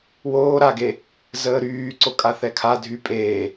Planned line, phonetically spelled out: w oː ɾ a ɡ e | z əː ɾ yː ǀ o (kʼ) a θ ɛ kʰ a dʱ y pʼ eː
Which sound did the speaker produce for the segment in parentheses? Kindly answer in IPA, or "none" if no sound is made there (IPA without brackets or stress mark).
kʼ